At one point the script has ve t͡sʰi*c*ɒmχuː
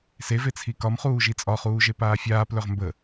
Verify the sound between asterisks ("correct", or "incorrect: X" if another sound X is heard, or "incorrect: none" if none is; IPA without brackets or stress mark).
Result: incorrect: k